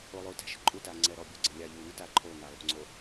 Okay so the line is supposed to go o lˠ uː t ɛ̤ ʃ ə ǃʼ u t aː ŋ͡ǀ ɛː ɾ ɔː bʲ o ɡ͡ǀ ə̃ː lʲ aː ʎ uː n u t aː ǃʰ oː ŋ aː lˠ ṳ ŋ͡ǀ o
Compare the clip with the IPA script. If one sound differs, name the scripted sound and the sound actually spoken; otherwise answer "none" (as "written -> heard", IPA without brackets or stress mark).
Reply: none